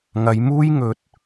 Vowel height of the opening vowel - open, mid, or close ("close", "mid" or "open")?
open